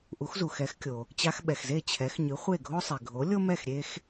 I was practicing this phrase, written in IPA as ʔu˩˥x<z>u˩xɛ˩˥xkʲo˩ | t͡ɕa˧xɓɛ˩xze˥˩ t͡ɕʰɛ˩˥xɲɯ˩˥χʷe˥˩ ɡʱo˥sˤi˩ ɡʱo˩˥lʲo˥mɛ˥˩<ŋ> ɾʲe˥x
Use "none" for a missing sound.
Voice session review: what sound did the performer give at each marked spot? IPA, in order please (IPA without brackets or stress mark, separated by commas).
z, x